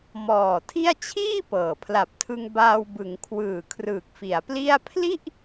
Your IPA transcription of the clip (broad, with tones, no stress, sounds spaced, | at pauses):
m ɔː˨˩ tʰ i˥˩ a̯ t͡ɕʰ iː˥˩ p ɤː˨˩ pʰ l a˨˩ p̚ tʰ ɯ˧ ŋ b aː˧ w b ɯ˩˦ ŋ kʰ w ɯː˨˩ kʰ r ɯː˨˩ k̚ f i˩˦ a̯ p l i˥˩ a̯ pʰ l i˥˩ ʔ